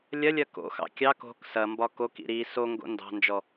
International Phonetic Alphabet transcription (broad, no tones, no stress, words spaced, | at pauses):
lʲɐlʲɐ ko̰xɑ̰ kʲɑk o̤k sɐmbɒ kokḭ ɾi soŋɡo̰ ndɑ̤nd͡ʒɔ